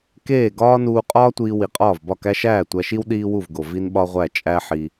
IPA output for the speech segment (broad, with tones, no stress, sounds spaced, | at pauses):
k eː˥˩ ɡ ɒː˥ n uː˧ qʼ ɒː˥ tʷ iː˧ w i˩ qʼ ɒː˥˩ v b ɒ˥˩ k æ˥ ʃ æː˥˩ tʷ æ˧ ʃ i˥ w ɗ iː˥ w u˥˩ v ɡ o˩ v i˥ n ɓ ɒ˥ ʁʷ æ˥˩ t͡ʃʼ æ˥ ħ i˧